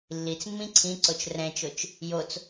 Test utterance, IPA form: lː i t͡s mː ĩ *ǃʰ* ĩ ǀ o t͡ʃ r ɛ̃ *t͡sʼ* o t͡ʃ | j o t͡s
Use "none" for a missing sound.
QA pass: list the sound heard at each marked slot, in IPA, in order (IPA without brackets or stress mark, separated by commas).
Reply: ǀʰ, t͡ʃ